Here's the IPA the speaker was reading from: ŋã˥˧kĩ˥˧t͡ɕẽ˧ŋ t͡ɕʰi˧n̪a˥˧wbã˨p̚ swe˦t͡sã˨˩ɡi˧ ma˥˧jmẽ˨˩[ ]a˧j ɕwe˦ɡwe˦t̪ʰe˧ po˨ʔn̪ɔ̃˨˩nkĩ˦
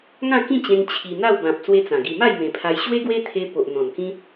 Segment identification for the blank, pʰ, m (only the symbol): pʰ